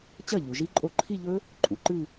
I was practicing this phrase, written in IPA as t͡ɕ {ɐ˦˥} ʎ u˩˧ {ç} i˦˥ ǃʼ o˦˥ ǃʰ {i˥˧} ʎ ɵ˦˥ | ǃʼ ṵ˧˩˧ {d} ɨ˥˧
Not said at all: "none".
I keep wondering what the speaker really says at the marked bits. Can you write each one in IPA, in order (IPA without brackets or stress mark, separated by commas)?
ɐ˥˩, ʒ, i˥˧, ǃ